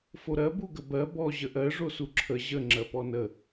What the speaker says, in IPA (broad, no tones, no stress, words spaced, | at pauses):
foɾɜ buɡəbɜ bɔ ʑəʔɜ ʐosuǁʰə ʑə ŋ͡ǁɜpɔnə